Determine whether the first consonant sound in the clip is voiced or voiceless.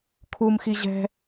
voiceless